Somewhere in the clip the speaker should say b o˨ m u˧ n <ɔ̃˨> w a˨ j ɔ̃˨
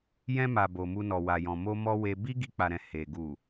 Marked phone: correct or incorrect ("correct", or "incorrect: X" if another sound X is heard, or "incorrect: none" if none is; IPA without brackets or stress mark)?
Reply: incorrect: ɔ˨